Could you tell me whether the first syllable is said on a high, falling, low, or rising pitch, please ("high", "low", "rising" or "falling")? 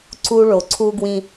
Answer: high